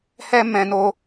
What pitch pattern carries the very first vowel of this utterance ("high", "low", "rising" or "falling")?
high